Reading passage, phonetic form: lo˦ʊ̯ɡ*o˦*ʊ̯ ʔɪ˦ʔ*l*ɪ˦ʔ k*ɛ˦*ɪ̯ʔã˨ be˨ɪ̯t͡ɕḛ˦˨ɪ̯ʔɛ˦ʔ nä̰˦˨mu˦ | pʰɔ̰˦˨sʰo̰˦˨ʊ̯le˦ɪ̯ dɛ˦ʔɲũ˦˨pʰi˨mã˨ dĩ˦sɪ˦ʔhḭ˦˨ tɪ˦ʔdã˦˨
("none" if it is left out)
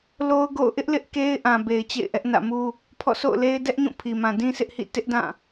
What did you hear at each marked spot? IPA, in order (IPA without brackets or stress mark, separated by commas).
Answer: o̰˦˨, l, e˦